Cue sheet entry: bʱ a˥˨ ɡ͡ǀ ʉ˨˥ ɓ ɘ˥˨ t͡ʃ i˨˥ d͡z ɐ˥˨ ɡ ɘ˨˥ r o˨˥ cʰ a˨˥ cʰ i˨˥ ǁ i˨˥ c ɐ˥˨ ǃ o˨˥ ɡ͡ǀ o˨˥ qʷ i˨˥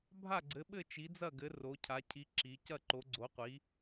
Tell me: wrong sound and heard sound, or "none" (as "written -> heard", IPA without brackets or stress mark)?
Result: ʉ˨˥ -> ɘ˨˥